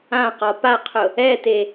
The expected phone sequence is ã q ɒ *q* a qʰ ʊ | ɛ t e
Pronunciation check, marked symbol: incorrect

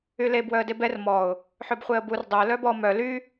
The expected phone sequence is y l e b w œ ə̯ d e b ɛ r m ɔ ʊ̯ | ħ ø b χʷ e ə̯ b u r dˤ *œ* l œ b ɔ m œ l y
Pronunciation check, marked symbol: correct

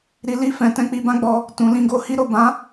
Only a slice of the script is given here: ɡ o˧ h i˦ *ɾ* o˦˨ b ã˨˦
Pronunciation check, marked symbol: correct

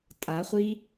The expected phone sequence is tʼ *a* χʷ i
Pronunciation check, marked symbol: correct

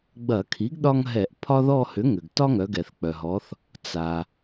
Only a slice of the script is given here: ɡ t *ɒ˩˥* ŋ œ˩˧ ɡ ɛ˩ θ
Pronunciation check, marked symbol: incorrect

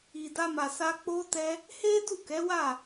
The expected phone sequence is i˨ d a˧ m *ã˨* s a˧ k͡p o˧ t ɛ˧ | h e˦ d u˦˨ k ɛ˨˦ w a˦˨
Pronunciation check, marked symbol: incorrect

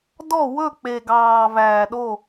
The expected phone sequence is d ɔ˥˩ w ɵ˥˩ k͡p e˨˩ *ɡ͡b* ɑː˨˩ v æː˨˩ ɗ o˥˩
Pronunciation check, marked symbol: incorrect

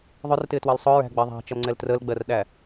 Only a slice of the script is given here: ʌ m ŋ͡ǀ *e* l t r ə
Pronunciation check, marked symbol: incorrect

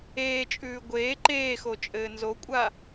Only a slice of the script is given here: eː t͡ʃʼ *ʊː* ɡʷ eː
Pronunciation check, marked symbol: incorrect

